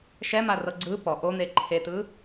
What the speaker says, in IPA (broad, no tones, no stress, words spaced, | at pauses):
ʃɛmarɤ ɡ͡ǀɯ pɔ ʔon̪e ǃʰetɯ